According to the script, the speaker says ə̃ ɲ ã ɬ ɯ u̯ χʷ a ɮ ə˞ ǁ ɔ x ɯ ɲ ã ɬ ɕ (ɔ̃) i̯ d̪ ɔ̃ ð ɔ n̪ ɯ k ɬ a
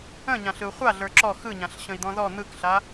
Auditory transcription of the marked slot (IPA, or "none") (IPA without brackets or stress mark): ə̃